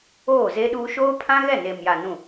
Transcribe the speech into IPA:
oː˦˨ze˦ɗuː˦ ʃoː˦pʰã˦ɣɛ˦˨ neː˨mja˨ nũ˦˨

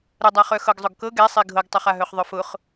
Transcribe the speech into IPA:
ɾədˤaχœ xɤɡzˤʊɡkɤ ɡɛsˤi ɡʱɤɡtˤœχaɦœχ ðˤœfʊχ

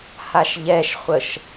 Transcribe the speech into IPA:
haʃʎɛʃχʷəʃ

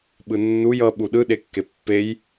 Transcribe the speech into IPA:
ɓɯnːuj ʌ ɓuɗɯ ɗekːepːej

